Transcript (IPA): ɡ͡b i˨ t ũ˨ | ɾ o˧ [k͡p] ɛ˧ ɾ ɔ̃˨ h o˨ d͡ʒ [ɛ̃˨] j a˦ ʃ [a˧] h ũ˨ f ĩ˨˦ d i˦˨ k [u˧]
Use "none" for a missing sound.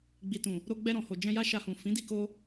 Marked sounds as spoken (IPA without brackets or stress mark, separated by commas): ɡ͡b, ɛ̃˧, a˧, o˧